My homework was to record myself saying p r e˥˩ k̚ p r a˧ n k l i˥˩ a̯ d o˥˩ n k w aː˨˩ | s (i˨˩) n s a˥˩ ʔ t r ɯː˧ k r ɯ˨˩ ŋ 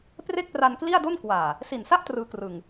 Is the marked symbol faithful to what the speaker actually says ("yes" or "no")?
yes